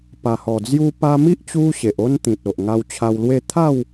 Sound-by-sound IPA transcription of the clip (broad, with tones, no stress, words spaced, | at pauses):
pa˨˩hɔ˨˩ d͡zju˧pa˧mi˦ʔ t͡ɕu˦ɕe˨ʔo˦nt̪ĩ˨t̚ o˨ʔŋa˧wt͡ɕʰa˧wlwe˥˧ t̪ʰa˥˧w